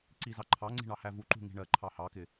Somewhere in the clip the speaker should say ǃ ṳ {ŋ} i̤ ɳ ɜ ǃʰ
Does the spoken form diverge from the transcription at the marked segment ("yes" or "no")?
no